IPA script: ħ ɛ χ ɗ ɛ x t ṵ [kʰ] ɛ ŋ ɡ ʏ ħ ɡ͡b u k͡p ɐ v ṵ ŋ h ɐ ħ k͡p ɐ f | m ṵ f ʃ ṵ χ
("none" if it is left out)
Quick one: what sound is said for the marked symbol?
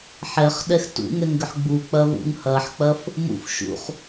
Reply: ŋ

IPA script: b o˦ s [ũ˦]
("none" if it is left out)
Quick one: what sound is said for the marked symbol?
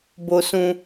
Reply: ũ˦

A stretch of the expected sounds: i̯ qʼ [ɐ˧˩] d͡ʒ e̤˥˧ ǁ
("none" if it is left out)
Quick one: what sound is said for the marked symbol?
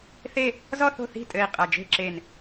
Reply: ɐ˧˩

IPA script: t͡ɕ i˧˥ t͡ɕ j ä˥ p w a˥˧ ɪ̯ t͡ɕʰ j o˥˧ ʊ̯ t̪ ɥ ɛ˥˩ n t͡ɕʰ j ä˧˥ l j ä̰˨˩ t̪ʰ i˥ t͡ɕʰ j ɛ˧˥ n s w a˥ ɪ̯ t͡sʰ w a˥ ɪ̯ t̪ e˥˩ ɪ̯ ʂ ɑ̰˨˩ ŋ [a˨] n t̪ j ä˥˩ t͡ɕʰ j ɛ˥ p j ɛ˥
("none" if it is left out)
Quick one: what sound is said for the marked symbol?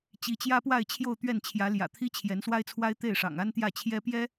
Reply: a˥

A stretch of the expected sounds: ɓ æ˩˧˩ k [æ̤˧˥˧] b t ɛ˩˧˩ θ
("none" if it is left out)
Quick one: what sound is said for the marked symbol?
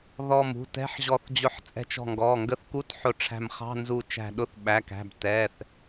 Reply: æ̤˩˧˩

